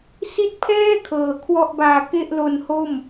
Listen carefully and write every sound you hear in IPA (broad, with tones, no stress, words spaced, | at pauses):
si˦˥t̚pʰɛː˥˩ kʰɤː˨˩kʰwɔ˥˩ʔbaː˧ ke˥˩ʔlo˧nho˥˩m